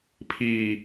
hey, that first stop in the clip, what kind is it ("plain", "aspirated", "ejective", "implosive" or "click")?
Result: aspirated